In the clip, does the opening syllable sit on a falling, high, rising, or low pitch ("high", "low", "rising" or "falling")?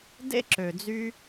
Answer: high